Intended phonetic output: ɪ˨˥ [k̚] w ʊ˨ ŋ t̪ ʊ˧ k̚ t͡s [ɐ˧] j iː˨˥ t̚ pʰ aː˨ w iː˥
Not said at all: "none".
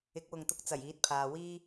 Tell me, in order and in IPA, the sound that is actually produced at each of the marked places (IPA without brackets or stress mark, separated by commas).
k̚, ɐ˨˩